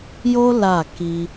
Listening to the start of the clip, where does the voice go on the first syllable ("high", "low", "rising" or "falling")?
high